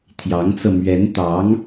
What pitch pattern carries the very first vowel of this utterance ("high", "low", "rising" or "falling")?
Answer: rising